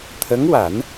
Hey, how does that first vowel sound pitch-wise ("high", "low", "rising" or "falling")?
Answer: rising